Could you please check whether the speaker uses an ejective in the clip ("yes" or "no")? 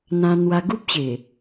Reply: no